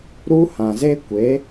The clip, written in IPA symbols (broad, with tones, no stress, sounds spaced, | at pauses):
ɾ u˦ h ã˨ z e˦ kʷ e˨˦